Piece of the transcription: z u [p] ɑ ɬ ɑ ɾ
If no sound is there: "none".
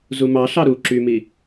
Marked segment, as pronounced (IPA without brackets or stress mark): m